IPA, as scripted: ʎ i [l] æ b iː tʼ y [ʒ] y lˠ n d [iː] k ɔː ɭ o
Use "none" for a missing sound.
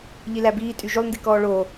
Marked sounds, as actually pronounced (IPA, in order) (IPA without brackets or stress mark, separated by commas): l, ʒ, i